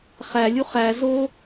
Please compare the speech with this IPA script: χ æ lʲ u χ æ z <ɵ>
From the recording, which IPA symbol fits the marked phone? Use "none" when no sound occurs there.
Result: o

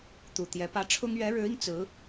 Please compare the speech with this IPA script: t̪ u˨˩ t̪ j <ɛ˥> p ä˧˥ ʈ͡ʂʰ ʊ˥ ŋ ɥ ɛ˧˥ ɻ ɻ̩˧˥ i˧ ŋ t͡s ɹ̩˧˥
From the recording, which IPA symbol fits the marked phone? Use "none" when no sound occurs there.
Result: ɛ˧˥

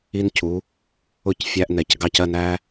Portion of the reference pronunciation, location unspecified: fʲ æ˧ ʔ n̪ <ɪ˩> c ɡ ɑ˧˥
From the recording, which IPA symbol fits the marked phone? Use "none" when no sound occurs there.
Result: ɛ˩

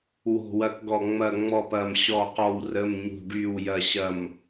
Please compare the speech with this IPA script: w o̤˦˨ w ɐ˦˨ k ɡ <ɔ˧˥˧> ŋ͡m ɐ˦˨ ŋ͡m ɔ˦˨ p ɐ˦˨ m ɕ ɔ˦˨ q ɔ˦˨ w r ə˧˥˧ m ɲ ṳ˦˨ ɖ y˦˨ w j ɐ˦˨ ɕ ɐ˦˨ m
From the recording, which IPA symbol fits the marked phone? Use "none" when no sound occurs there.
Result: ɔ˦˨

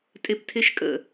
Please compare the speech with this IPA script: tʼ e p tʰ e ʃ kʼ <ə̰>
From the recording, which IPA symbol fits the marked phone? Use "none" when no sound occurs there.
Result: ə̰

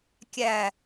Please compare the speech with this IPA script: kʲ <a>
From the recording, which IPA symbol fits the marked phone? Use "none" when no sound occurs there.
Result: æ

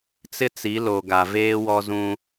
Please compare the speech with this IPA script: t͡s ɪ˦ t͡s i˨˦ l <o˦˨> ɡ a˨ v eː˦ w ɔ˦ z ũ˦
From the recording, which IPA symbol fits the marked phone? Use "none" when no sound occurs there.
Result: o˨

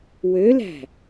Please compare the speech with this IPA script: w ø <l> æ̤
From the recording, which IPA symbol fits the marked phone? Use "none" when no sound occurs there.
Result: l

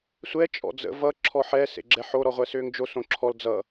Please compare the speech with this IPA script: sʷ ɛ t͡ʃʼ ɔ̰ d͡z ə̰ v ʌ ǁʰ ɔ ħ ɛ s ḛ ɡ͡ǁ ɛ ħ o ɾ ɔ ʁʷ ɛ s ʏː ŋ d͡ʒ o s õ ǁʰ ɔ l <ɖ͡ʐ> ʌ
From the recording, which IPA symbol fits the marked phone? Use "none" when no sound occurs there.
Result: d͡z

